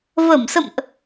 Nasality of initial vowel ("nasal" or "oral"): oral